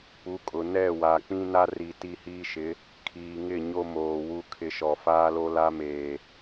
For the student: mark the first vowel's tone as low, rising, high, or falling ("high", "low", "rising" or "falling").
rising